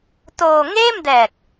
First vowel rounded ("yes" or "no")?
yes